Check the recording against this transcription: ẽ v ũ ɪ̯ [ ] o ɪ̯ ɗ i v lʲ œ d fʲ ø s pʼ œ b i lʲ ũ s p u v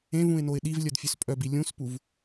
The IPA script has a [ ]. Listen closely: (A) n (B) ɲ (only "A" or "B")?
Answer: A